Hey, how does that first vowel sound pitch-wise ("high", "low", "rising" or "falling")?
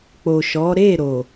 low